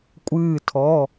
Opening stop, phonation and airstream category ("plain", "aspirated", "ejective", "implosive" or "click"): ejective